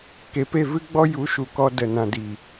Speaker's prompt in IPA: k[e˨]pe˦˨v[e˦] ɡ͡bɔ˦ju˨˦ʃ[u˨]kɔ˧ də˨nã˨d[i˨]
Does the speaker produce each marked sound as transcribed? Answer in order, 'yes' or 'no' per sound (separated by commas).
yes, no, yes, yes